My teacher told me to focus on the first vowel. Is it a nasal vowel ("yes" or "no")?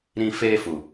yes